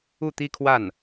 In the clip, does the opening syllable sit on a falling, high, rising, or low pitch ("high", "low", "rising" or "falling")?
falling